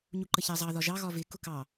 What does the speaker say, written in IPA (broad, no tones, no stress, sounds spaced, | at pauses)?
ɲ u ǃ ə ç æ zˤ ɑ ð ɒ ʒ ɑ ɣ ɒ v ɪ k ʊ k ɑ